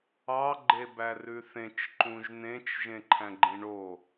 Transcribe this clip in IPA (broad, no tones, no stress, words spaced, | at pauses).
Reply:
ɑ ɡ͡ǃebærʉθẽt͡ʃ ǃũʒnẽt͡ʃ ʒẽǃʰæ̃ɡ͡ǃĩɳo